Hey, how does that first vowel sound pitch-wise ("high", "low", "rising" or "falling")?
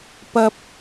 low